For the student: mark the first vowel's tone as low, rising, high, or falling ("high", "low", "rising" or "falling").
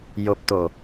low